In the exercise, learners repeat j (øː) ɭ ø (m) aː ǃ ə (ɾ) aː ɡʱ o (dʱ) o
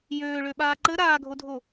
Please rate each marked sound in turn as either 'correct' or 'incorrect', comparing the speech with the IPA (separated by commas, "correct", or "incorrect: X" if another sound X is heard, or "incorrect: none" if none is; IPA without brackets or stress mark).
correct, incorrect: ɓ, correct, correct